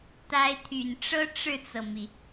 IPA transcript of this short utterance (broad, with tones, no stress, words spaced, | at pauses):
t̪a˧˥ɪ̯t̪ʰy˨˩n ʈ͡ʂɤ˥ ʈ͡ʂɻ̩˥˩t͡sɤ˩mi˩